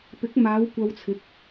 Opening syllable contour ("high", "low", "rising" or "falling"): rising